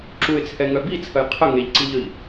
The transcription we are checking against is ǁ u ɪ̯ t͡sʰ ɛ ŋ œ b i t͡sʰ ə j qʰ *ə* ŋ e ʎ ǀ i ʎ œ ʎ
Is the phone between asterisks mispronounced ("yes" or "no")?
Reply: no